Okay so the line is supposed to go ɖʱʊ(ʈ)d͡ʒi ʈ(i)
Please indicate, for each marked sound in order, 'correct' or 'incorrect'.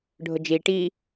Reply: incorrect: none, correct

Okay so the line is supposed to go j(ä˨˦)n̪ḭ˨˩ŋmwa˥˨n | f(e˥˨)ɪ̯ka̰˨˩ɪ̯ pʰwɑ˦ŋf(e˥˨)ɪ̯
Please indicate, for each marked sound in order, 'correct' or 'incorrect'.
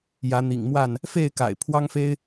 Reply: correct, correct, incorrect: e˦

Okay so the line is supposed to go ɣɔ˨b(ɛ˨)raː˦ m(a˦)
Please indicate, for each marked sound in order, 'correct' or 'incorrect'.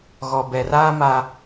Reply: correct, correct

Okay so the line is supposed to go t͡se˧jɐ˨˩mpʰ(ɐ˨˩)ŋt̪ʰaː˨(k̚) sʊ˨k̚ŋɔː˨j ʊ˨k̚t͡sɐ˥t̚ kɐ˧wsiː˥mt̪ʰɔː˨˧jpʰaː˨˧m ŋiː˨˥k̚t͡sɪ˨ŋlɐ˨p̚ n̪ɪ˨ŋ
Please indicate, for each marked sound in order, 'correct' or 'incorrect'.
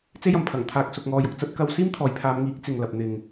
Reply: correct, correct

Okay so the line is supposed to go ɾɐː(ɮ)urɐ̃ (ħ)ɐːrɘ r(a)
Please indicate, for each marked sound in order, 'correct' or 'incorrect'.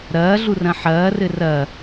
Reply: correct, correct, incorrect: ɐ

